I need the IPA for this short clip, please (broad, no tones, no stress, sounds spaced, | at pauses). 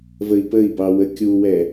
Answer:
v ə i̯ p ə i̯ b ɑ w ə kʲ u w ɛ